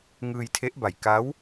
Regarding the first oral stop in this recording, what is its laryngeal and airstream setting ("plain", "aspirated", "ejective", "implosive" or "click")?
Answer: aspirated